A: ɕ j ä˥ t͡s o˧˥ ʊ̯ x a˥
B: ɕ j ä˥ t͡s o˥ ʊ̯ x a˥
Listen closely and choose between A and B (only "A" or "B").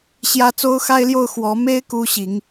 B